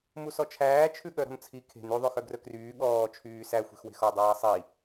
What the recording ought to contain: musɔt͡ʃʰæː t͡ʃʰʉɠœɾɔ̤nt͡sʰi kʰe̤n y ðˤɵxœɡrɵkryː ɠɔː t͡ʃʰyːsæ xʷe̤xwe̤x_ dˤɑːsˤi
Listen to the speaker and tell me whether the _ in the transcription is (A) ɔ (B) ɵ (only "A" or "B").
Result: A